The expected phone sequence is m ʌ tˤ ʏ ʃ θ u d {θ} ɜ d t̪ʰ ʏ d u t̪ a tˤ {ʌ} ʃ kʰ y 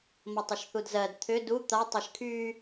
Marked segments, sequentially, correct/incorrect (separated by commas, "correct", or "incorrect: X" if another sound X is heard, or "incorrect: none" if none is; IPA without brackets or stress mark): incorrect: z, incorrect: ə